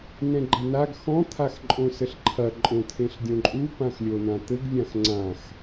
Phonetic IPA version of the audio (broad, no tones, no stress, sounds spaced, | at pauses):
n ɛ̃ ɡ͡ǃ ɐ n a ɡ x ɔ̃ t̪ʰ a x ǃʼ õ s ɘ ɬ ǃʰ ɐ ǃʼ õ t̪ʰ ẽ ɬ dʲ õ ǃʼ u p ã x lʲ o n ã t̪ ɘ ɡ vʲ ã x ŋ͡ǀ ã x